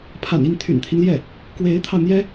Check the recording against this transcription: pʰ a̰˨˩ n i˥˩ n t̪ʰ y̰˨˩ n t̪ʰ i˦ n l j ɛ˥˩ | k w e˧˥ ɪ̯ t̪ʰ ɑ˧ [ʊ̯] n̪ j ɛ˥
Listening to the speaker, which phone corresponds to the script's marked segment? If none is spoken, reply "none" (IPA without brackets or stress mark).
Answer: ʊ̯